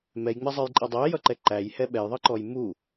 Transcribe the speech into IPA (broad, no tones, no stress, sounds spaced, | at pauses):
m ɛ j ŋ͡m ɛ zˤ ə˞ j ǃʼ ʌ dˤ æ j ʌ ǃ ɛ ǃ æ j h ɛ ɓ ɛ j ðˤ ʌ ǃ ɔ j m u